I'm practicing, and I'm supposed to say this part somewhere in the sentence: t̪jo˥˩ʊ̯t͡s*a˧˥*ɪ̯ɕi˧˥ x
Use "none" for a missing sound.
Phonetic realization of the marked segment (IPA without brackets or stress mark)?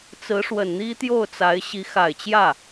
a˧˥